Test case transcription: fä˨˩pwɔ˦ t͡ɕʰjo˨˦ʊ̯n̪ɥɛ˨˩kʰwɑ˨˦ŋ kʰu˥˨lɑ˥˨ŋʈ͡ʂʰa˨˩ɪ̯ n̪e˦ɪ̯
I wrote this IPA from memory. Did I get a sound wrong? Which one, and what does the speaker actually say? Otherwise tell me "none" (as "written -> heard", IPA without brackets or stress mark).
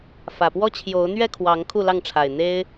ɛ˨˩ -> ɛ˥˨